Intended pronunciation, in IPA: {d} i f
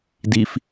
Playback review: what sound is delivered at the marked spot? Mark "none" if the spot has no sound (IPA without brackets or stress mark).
d